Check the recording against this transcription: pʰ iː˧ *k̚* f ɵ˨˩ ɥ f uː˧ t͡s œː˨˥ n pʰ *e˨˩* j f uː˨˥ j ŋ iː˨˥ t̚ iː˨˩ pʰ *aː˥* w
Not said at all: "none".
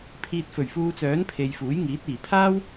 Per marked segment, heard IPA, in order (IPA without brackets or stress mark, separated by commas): t̚, e˨, aː˥